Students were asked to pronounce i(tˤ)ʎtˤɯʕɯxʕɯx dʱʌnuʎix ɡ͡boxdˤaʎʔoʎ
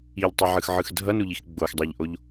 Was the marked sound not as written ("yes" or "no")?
yes